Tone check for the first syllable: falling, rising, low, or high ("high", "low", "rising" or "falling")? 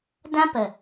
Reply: high